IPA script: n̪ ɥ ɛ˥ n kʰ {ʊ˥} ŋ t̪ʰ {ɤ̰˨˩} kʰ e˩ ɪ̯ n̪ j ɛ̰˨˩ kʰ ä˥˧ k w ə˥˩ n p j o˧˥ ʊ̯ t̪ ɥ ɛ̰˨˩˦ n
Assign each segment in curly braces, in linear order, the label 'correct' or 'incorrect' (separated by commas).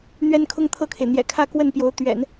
correct, incorrect